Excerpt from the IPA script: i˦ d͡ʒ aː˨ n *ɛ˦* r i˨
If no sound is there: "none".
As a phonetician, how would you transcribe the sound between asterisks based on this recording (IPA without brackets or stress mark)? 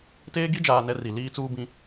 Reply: ɛ˦